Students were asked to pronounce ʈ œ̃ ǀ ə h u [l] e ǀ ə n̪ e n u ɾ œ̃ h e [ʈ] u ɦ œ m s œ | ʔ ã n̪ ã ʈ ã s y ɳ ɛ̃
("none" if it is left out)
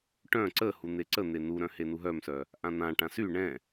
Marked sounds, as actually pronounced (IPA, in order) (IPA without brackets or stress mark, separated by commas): n̪, n